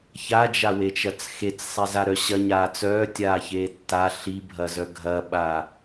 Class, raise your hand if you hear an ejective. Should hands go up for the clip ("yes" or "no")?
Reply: no